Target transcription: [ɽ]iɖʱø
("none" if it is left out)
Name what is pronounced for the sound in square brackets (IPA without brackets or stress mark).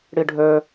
ɽ